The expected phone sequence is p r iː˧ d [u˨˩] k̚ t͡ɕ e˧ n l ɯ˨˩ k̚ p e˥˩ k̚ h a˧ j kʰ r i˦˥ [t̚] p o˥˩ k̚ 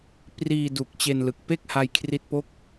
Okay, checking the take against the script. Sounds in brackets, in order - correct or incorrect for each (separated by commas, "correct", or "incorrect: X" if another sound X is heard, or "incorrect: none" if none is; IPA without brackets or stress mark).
correct, correct